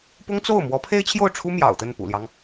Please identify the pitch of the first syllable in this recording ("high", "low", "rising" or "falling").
high